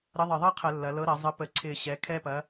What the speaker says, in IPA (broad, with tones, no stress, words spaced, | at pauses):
ɾə˨˥ðˤə˨˩ ðˤɤ˥qʰə˧˩˧ lːɐ˩˧lɤ˨˥ɾɐ˧˩˧ zˤə˨˥pə˧˩˧ ǀʰɪ˨˩ɕɛ˩˧ kʰɛ˥pɐ˨˥